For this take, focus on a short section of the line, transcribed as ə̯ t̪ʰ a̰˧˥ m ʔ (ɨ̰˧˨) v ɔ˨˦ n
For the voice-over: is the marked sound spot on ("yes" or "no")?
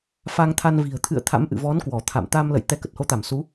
yes